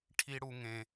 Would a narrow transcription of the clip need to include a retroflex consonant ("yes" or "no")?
yes